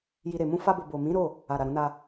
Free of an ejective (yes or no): yes